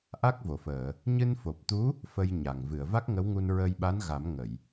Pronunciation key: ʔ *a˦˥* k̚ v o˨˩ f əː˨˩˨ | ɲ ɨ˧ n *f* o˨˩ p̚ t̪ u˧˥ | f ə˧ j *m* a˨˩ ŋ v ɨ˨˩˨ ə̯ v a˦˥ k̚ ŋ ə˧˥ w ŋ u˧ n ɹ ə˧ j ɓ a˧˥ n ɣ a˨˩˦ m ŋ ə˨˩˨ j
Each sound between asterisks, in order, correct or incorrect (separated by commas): correct, correct, incorrect